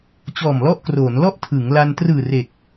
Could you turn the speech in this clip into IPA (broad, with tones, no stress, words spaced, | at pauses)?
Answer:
t͡ɕɔː˨˩mlɔ˦˥ʔkroː˩˦nlɔ˥˩ʔ tʰɯ˩˦ŋ la˧n trɯː˨˩ re˨˩k̚